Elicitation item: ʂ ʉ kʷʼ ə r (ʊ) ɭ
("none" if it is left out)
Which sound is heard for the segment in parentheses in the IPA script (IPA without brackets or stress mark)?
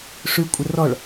ɔ